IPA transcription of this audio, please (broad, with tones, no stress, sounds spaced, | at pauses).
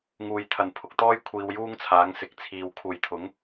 ŋ uː˨ j t̪ʰ ɐ˨˩ n pʰ ʊ˨ k̚ t̪ ɔː˥ j kʷʰ iː˧ w j uː˥ ŋ t͡sʰ aː˨˥ ŋ s ɪ˨˥ k̚ t͡sʰ iː˨ w kʰ uː˨ j t̪ʰ ʊ˨˥ ŋ